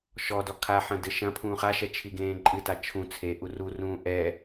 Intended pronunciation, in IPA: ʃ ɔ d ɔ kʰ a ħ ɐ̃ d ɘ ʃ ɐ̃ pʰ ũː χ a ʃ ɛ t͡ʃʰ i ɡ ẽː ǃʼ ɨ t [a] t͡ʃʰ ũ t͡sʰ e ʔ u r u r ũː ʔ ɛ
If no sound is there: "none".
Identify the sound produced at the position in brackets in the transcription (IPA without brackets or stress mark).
a